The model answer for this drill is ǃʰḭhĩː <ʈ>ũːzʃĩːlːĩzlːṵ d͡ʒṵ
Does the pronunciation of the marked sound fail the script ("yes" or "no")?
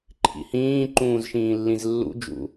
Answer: yes